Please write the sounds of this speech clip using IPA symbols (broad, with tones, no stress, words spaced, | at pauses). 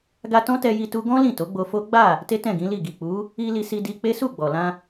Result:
ɡa˧ tɔ̃˦tɛ˧ji˧ tu˦ ɡɔ̃˦ lĩ˦˨to˨˦ɡ͡bo˧fo˦ ɡ͡ba˦˨ | te˦tɛ̃˦˨ɡĩ˨˦li˦˨ ɡi˨k͡pu˨˦ | i˧ li˧si˧di˧k͡pe˦ su˦˨ɡ͡bɔ˨lã˧